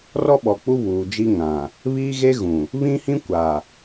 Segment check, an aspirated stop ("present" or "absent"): absent